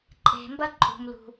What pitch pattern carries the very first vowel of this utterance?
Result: low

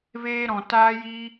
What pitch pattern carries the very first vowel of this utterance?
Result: high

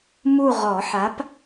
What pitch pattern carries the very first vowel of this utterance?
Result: falling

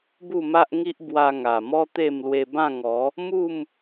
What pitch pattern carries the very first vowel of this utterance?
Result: falling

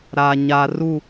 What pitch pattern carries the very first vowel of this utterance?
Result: low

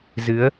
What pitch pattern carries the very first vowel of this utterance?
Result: rising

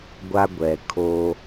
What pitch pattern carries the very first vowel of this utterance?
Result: high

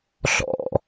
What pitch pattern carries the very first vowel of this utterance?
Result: falling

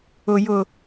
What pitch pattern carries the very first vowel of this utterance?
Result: low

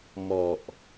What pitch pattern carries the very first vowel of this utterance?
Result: low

